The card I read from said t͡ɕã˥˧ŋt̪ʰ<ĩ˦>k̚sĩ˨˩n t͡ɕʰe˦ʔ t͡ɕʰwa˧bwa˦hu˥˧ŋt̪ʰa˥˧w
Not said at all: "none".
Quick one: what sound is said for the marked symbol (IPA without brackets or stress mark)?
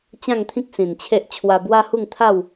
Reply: ĩ˦